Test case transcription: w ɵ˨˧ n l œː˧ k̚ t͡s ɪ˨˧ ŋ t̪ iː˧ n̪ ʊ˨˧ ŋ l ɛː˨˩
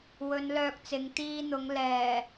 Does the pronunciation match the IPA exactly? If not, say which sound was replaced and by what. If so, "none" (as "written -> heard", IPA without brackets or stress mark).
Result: none